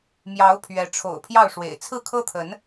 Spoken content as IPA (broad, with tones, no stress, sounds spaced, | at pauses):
m j ɑ˨˦ ʊ̯ pʰ ɥ ɛ˨˦ ʈ͡ʂʰ o̰˨˩ ʊ̯ pʰ j ɑ˥˨ ʊ̯ ʂ w ḛ˨˩ ɪ̯ t͡sʰ ɹ̩˥˨ kʰ ɤ˦ t̪ʰ ə˨˦ n